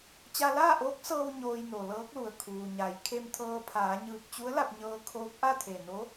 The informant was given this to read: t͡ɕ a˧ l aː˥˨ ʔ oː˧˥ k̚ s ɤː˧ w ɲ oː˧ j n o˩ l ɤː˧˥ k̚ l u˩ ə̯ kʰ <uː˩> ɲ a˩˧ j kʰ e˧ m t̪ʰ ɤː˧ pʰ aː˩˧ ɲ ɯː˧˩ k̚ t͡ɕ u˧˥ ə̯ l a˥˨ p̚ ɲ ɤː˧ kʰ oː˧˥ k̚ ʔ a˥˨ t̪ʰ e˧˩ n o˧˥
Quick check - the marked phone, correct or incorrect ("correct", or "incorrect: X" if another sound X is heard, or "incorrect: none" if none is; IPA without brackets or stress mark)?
correct